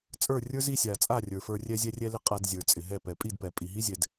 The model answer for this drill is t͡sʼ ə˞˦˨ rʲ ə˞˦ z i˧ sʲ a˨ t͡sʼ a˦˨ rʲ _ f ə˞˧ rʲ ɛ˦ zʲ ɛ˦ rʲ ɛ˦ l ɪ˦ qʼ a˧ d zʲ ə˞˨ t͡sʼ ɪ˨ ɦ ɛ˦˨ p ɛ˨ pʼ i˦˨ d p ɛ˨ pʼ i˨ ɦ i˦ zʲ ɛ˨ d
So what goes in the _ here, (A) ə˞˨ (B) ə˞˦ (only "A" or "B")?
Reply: A